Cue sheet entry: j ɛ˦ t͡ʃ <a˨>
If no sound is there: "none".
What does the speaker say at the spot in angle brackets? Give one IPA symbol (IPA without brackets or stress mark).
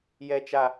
a˦